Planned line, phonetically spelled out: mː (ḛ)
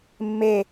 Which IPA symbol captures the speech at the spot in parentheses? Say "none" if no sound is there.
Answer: e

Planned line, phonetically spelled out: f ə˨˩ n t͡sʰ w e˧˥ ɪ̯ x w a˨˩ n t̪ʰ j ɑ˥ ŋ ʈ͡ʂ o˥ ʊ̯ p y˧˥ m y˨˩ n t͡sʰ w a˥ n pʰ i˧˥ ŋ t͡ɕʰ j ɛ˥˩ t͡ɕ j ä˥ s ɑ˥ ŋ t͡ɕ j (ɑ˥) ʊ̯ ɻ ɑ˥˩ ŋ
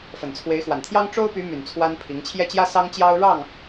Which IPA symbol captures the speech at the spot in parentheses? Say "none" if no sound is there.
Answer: ɑ˥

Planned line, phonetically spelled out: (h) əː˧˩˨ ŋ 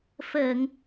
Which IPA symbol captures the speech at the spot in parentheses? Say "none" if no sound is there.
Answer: f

